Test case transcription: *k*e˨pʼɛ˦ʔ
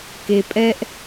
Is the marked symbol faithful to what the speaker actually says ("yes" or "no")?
yes